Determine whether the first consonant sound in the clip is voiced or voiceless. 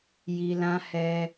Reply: voiced